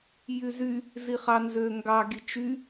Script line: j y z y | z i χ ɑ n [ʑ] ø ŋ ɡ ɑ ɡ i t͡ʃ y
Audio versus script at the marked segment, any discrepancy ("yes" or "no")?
yes